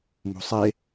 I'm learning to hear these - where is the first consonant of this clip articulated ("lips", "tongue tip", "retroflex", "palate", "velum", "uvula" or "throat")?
lips